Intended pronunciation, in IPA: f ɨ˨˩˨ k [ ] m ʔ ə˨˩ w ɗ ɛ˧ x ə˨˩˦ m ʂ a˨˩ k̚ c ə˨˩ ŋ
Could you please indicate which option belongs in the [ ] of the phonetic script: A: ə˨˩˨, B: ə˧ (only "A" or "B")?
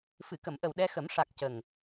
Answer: A